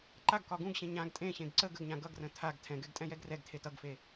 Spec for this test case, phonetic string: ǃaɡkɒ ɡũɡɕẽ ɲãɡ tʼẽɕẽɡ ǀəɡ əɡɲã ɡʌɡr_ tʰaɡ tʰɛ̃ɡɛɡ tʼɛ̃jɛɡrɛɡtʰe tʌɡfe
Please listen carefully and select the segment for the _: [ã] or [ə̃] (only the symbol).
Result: ə̃